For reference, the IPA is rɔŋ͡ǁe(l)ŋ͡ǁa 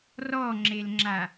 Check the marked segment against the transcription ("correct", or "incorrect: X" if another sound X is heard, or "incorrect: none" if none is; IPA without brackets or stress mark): correct